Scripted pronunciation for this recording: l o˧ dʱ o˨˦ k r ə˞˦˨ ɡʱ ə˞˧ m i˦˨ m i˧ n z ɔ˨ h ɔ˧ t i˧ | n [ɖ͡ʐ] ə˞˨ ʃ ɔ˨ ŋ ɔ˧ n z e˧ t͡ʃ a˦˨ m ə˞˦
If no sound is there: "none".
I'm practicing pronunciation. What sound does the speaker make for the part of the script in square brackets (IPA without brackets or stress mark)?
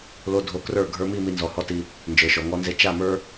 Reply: d͡ʒ